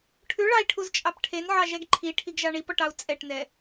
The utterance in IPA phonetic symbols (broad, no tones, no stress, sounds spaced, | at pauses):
ʈʰ ʉ ɭ ɑ i̯ ʈʰ u z t͡ʃʼ ɑ p ʈʰ e n ʕ ɑ ʒ ɛ ɡ ǃʰ i ʈʰ i ɡ ʒ ɑ ɳ i p ɔ ʈ ɑ u̯ t͡sʼ ɛ ʈ n ɛ